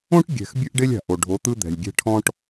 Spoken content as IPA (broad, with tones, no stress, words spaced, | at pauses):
õ˦ʈ ɡʲɛ̤˨x bʲɯ˦ʔɖe˦lʲa̤˨ ʔo˨ ɖʱo˨˦t̪ɯ˦ d̪ɛ̤˨lʲɡʲɛ̤˦ ʈʰɔ̃˦ʈ